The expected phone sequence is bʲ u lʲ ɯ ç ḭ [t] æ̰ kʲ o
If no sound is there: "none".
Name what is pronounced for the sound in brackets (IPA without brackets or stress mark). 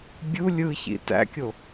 t